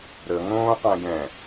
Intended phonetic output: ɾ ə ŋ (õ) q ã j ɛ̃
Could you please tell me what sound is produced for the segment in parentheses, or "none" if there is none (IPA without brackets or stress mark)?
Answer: õː